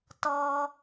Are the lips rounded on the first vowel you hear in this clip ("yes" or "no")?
yes